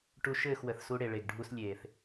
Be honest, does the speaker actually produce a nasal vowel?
no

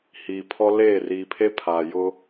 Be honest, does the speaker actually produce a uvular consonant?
no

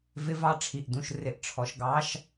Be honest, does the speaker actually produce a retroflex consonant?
yes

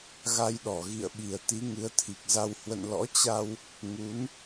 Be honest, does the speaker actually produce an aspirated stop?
yes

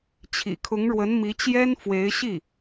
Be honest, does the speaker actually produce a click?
no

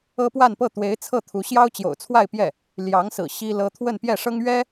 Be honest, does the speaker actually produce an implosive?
no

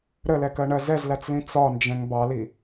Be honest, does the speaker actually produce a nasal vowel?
yes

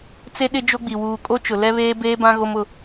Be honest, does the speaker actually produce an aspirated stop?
no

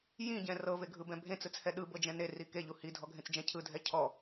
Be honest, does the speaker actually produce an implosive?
yes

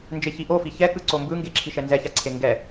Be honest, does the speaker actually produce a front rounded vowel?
no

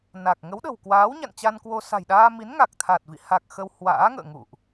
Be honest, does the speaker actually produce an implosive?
yes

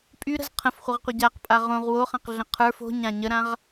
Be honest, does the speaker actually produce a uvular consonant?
yes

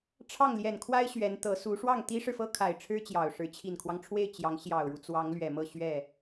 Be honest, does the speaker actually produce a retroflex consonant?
yes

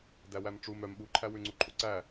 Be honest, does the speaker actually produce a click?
yes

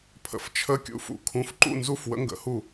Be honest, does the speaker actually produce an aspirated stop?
yes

